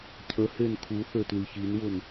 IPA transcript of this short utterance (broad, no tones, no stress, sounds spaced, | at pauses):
cʰ ə h e n kʰ u θ ø t l i ç i n w ʊ n